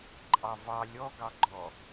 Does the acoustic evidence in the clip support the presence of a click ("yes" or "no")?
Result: yes